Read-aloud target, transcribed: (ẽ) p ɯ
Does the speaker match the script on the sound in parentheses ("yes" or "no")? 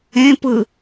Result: yes